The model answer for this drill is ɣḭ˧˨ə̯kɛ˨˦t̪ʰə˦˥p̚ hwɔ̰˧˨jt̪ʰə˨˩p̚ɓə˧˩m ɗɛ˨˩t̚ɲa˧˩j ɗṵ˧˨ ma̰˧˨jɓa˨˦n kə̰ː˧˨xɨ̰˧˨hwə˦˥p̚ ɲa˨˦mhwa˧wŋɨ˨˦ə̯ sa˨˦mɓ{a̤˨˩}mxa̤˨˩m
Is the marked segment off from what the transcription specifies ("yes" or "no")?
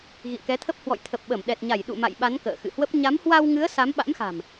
yes